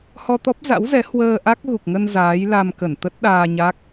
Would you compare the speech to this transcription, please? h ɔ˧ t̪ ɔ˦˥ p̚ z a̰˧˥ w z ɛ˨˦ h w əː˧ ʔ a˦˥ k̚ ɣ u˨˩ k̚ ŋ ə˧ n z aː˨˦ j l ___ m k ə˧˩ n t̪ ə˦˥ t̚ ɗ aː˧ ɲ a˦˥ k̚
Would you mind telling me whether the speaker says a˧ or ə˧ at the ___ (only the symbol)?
a˧